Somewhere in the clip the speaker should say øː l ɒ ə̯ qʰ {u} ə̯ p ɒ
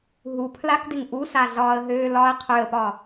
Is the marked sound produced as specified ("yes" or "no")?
no